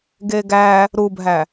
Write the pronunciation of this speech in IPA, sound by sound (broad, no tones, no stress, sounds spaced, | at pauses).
ɡ e ɡ æ | ɾ u bʱ æ